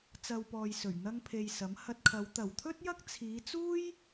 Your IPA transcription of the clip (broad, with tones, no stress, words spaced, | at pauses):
t͡sɐ˧wpɔː˨j sɵ˨˩ɥn̪ɐ˥ŋpʰe˧jsɐ˨˥m hɐ˧t̚kʰɐ˨˧w t̪ɐ˨˩wt̪ʰɵ˥t̚jɐ˥k̚ t͡sʰiː˨˧t͡suː˥j